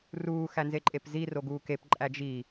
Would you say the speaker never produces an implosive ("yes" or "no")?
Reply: yes